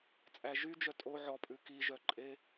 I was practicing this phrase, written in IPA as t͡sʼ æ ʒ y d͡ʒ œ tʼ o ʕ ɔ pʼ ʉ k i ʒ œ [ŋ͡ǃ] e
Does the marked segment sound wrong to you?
yes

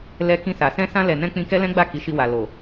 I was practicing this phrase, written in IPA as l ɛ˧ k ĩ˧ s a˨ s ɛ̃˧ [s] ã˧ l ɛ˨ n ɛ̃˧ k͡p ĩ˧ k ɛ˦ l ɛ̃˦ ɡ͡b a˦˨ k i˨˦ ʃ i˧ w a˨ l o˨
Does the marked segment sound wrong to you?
no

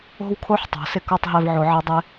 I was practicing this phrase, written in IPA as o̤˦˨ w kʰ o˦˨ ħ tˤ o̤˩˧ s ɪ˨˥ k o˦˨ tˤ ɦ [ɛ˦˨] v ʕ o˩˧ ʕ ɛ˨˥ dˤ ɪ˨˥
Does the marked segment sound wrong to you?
no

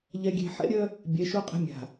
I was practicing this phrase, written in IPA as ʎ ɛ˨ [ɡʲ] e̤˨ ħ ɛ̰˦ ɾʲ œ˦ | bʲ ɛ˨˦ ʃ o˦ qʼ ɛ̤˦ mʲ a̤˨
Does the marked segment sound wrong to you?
no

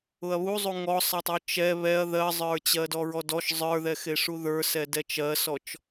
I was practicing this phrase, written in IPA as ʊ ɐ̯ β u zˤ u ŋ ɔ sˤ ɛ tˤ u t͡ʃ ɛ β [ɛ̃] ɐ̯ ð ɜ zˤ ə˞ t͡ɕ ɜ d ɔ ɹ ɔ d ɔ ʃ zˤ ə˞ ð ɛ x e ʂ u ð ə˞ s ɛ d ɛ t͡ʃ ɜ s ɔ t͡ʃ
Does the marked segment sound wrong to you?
yes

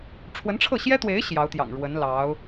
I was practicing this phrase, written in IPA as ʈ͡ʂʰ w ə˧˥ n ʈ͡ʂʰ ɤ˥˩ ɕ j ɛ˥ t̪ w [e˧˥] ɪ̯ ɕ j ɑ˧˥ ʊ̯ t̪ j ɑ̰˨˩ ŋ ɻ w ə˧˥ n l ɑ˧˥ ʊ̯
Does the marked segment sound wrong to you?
no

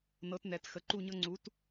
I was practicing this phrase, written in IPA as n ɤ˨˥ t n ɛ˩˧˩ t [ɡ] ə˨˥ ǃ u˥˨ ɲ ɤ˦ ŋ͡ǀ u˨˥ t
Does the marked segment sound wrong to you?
yes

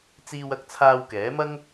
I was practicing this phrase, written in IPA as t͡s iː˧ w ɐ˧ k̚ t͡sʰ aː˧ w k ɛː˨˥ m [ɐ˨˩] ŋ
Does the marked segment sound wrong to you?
yes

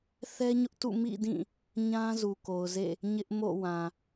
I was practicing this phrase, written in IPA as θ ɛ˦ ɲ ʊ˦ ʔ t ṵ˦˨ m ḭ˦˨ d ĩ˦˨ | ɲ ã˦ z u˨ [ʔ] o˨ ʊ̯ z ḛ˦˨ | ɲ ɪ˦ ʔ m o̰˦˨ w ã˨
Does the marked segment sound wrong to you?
yes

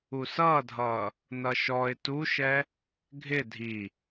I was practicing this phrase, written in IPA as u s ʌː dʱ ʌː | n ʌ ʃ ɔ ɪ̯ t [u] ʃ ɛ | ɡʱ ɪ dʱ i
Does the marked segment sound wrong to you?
no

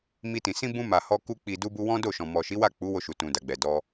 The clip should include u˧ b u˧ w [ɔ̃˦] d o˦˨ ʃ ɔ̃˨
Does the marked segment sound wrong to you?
no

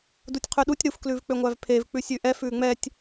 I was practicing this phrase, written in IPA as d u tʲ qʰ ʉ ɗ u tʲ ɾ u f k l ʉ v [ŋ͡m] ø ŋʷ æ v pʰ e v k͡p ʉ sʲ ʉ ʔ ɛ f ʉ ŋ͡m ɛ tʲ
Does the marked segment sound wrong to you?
yes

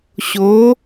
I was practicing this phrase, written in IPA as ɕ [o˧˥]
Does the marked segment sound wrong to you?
no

